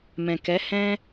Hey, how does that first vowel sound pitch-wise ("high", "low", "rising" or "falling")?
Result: low